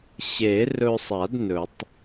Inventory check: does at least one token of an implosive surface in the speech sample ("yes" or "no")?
no